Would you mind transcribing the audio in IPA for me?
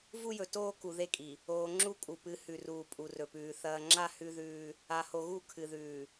v u˦ j ɵ˨ t oː˦ k u˨ ð e˦ kʼ i˨ | oː˨ ŋ͡ǁ u˦ kʼ u˨ p ɨ˨˦ h ʉ˨ r uː˨ pʼ u˨ r ɵ˨ p ʉː˨ θ ɐː˨ ŋ͡ǁ a˦˨ h ʉ˦ ð ʉː˦ | a˨ h o˨ ɣ u˦˨ kʰ ɨ˨ ð ʉː˨

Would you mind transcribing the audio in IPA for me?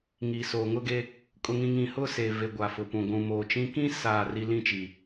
ŋ iː˨ s oː˨ ŋ ʊ˦ ɡ e˦ | kʼ ʊ˦ ŋ ĩ˦ ŋ ĩ˦ h ʊ˦ s e˨ v e˨ ɡʷ a˨ f ʊ˨ p ũ˨ ɡʷ ũ˨ m oː˨ t͡ʃ ĩ˦ k ĩ˦ s aː˦˨ r i˦ l ĩ˦ t͡ʃ i˨

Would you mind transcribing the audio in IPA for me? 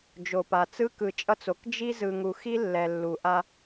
d͡ʒ o˨ p a˨ t͡s ɯ˦ k ɯ˨ t͡ʃʼ ʌ˦ t͡s o˨ k d͡ʒ i˦ z ɯ˨ ŋ u˨ x i˦ lː ɛ˨ lː u˨ ʔ a˦

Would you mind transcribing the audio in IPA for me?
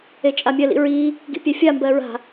e t͡ʃʼ a mʲ ɜ l ḭ ɹ i | ɡ ḭ pʲ ɛ fʲ a m b ɜ ɹ a̤

